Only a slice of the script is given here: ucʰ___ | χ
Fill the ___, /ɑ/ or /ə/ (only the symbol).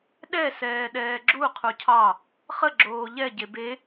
ɑ